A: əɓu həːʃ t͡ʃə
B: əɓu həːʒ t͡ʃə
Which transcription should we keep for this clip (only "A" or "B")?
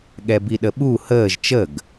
B